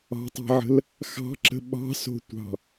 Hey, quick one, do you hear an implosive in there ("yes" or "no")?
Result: yes